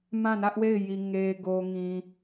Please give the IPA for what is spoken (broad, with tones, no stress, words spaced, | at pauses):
mã˦˨nä˦ʔwe˦˨ɪ̯ ji˨ ŋe˨ɡo˨ ŋĩ˨